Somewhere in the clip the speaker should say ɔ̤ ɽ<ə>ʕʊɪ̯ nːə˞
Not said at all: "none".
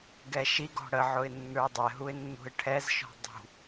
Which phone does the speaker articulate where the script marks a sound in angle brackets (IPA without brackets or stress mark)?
ə